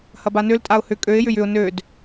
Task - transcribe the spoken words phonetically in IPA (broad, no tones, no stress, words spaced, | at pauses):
hɐbanøl tʼaʊ̯hʏ kʼøɪ̯ jʏjʏʊ̯ nød